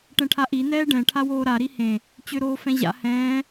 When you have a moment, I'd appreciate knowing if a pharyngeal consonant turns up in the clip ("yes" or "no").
no